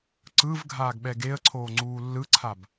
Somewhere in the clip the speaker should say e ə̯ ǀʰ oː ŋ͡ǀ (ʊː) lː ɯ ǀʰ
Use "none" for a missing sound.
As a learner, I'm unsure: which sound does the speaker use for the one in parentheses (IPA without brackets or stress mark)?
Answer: uː